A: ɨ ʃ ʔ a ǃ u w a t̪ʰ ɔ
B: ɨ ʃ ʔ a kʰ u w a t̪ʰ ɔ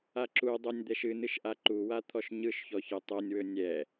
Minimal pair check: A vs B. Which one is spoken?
A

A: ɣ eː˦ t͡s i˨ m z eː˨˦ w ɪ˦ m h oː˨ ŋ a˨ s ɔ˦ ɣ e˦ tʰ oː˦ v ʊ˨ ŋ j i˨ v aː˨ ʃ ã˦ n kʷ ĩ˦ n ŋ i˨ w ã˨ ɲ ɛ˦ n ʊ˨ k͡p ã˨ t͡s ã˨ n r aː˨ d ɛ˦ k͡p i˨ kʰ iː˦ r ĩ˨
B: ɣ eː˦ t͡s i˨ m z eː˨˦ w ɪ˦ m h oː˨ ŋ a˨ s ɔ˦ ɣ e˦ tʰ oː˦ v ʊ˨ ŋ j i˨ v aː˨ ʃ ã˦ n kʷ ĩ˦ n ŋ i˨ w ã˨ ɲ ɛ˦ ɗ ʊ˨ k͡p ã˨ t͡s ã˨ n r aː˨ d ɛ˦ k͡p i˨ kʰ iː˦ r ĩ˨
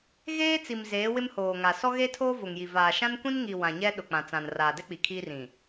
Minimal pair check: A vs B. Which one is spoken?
B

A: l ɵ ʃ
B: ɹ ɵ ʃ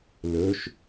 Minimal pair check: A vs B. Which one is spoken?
A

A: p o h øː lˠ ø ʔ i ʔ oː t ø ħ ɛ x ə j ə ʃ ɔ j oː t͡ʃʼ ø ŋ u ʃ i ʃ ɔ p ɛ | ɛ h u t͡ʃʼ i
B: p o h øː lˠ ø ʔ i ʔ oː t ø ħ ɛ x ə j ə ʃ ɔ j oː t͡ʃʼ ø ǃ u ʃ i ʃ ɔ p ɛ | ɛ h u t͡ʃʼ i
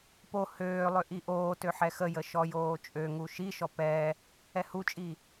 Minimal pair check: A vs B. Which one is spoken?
A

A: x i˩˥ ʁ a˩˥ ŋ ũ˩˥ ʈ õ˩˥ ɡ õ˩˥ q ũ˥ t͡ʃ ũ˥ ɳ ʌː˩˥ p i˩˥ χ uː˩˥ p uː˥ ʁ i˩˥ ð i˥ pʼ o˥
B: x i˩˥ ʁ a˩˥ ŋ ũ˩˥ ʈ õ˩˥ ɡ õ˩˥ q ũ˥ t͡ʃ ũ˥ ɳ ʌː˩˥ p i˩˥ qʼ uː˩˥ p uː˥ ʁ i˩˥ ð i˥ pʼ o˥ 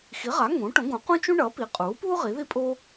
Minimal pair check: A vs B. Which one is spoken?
B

